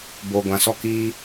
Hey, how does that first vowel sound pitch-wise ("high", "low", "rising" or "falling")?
low